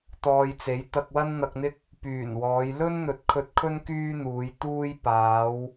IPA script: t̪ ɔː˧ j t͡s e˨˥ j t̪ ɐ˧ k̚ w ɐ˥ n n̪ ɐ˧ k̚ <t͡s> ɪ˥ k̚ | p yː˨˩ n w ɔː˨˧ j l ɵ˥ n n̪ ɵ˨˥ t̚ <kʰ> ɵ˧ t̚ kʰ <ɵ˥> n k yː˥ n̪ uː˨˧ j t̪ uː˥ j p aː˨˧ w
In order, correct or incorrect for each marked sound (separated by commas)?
incorrect, correct, correct